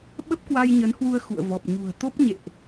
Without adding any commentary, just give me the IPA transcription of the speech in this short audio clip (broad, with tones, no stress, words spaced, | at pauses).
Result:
ɓə˦˥p̚kwa˧jɲə˨˦nhwu˧ə̯ xṵ˧˨ə̯vɔ˨˩p̚ ɲṳ˨˩ə̯t̪o˦˥p̚ɲḛ˧˨ʔ